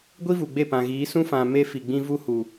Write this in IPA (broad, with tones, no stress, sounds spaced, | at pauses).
ɡʷ i˦ v u˨ ɡ͡b e˦˨ p ã˨ ɣ iː˨˦ s ũ˦ f ã˨ m e˦ f i˨ ɡ͡b ĩ˦ v u˦ h u˨